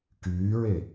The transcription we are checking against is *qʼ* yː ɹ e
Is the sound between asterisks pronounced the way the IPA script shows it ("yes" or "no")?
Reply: no